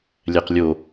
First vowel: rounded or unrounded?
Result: unrounded